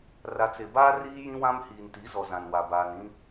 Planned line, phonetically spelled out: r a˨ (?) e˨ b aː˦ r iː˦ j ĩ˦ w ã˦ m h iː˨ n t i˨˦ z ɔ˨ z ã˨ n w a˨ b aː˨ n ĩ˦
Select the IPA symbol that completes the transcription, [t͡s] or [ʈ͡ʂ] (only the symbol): t͡s